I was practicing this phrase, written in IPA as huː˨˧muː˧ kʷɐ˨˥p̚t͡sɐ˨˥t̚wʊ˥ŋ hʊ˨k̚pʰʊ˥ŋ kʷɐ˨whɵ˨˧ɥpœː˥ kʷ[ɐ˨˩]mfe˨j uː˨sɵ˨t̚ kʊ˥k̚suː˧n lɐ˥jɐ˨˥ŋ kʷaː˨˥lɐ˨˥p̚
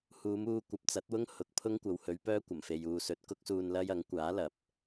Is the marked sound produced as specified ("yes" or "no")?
yes